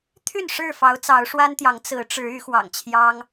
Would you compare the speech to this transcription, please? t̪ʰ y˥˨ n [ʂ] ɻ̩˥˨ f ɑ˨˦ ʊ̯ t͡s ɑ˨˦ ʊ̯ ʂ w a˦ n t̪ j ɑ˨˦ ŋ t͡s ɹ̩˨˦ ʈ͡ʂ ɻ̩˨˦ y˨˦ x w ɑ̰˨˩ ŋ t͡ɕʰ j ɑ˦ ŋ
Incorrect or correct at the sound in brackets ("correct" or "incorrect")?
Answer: correct